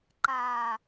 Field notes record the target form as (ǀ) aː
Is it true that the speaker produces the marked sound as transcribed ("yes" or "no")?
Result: no